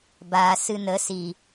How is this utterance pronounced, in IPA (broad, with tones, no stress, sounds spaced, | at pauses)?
b aː˨ s ɨ˧ n ə˨˦ s i˨